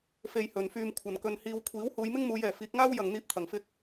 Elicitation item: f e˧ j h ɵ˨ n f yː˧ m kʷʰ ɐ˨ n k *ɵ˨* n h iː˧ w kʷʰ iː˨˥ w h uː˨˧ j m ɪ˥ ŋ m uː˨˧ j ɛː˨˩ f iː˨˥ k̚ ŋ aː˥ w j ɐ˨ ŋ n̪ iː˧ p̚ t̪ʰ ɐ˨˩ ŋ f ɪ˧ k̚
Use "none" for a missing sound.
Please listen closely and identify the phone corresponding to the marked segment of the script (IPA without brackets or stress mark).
ɵ˧